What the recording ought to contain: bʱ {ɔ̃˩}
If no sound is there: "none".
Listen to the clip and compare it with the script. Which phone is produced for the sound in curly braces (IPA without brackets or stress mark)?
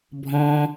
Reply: ɔ̃˩